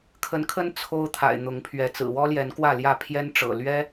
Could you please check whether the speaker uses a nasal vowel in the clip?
no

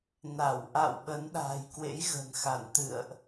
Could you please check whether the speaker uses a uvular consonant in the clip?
no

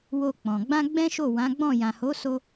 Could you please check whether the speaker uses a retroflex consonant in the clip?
no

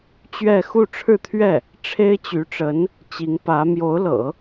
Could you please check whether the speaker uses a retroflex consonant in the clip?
yes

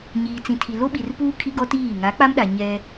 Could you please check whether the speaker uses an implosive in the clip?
yes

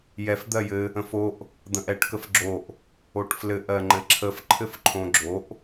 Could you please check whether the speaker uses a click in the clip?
yes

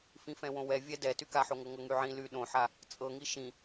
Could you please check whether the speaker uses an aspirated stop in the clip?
no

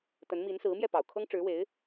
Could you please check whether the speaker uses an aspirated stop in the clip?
yes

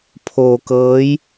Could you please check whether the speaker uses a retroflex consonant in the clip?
no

